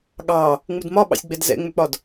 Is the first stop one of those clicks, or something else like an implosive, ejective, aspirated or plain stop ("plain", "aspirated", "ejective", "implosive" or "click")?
implosive